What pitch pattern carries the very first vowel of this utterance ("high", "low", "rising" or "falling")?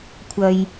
low